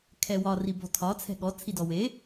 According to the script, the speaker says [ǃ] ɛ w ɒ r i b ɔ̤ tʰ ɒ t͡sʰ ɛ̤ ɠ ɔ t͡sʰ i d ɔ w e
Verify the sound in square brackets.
incorrect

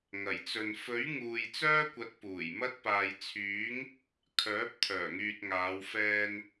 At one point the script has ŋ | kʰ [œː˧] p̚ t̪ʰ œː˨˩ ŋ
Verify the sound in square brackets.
incorrect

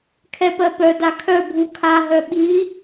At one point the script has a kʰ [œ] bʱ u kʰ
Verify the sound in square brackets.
correct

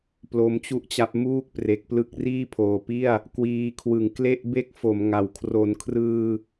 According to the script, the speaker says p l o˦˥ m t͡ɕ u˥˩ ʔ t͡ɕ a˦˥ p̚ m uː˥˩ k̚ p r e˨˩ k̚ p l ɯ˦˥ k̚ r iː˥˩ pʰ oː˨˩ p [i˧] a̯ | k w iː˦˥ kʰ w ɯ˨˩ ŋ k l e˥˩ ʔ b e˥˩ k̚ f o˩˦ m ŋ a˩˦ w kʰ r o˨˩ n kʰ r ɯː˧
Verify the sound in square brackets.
incorrect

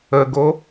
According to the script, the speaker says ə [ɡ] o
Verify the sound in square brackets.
correct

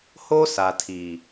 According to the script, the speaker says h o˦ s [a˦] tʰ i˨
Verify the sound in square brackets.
incorrect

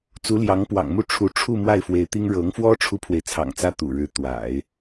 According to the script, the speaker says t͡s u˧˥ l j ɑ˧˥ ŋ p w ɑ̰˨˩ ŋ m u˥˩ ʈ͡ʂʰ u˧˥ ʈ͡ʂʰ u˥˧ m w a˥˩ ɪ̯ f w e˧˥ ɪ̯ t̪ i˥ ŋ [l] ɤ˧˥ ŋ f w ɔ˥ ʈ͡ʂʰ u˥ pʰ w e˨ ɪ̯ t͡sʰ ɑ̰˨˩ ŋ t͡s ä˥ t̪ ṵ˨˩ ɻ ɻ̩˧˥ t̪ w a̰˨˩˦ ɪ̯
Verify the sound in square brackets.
incorrect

